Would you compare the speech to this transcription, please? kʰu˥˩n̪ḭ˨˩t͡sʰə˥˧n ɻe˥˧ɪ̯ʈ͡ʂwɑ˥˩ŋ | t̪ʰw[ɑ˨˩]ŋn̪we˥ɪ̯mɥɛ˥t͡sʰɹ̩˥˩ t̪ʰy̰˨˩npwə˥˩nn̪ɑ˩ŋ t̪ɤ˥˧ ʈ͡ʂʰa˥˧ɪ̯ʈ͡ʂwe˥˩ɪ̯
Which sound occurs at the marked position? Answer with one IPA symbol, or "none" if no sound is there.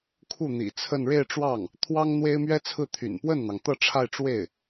ɑ˥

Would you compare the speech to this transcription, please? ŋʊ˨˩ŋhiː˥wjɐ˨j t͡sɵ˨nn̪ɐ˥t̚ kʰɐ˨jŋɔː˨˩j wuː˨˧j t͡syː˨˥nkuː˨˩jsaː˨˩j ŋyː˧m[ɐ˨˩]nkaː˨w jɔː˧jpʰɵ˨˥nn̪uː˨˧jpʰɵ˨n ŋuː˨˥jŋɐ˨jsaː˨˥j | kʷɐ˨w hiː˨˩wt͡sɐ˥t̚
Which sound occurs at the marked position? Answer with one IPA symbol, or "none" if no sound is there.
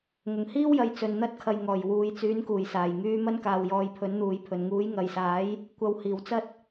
ɐ˥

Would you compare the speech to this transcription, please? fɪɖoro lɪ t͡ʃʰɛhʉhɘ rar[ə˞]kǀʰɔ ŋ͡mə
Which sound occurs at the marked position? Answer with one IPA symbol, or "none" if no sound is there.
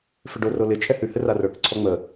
ə˞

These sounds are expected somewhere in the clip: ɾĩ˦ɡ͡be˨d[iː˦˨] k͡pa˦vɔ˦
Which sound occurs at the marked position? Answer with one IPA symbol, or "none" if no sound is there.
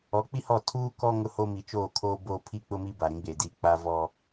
i˦˨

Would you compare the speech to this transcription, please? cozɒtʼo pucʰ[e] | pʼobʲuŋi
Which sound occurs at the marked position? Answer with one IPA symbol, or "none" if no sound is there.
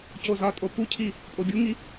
i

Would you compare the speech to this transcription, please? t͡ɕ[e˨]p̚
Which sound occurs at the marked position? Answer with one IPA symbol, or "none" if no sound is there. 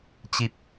i˨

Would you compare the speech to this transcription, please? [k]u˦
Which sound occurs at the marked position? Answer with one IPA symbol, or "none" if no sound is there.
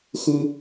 x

